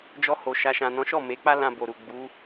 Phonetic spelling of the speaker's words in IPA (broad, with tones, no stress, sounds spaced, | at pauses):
d͡ʒ ɔ˧ h o˨ ʃ a˨ ʃ ã˨ n ɔ̃˨˦ ʃ ɔ˦˨ m e˨˦ k͡p a˦ l ã˧ b o˨ ɾ u˨ ɡ͡b u˨˦